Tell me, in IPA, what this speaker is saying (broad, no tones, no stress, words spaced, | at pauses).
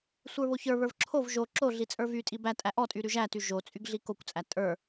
sʷə˞βoçə˞βə˞v ǁʰov ʒo ǁoɮi t͡sʼə˞vytʼi bætʼæ ʔɔtʼy ɾyʒæty ʒot͡sʼyɡ ɮikokʷt͡sʼæ tʼə˞